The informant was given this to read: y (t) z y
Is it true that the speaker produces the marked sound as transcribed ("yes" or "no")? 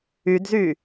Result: no